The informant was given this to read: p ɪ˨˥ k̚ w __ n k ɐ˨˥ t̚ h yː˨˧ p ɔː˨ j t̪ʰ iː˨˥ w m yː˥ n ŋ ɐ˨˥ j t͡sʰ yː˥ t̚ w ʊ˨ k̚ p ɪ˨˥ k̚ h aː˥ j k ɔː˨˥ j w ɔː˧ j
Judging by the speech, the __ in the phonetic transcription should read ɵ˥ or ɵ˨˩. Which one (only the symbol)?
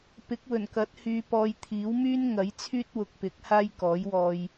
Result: ɵ˨˩